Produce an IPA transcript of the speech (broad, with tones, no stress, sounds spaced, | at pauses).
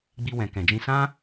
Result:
ɡ͡b i˧ w ɛ̃˨ k ɛ̃˨ d͡ʒ ĩ˧ s ã˦